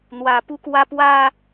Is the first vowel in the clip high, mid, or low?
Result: low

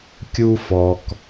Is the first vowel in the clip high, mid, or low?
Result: high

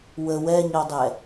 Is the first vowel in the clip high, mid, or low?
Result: mid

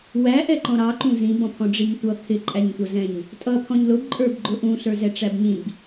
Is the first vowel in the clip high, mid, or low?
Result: low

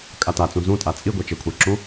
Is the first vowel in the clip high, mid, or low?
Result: low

